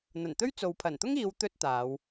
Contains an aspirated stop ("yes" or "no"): yes